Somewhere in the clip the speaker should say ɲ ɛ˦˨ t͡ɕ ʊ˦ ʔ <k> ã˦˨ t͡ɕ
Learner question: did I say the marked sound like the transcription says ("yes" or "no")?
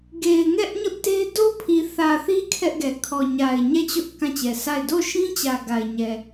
yes